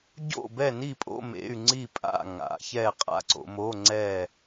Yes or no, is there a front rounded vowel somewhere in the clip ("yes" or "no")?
yes